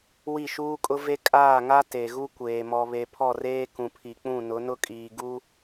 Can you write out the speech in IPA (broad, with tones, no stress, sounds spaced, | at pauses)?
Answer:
w i˦˨ ʃ uː˦ kʼ ʊ˦ v e˦ kʼ aː˦˨ ŋ a˦ t e˨ ɣ u˦ kʷ eː˨ m ɔ˨ β e˨ pʰ ɔ˦˨ r eː˦ k ũ˨ pʰ i˨ k͡p ũ˦˨ n ʊ˨˦ n ʊ˦ kʼ iː˨ ɡ u˦